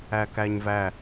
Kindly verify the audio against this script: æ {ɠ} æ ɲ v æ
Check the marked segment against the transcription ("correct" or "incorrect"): incorrect